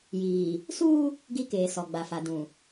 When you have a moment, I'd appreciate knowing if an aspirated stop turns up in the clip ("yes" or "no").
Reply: no